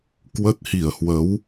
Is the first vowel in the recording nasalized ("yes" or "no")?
no